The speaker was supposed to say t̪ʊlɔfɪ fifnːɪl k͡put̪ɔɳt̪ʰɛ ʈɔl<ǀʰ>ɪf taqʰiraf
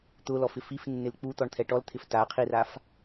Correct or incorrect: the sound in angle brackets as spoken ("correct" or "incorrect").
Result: incorrect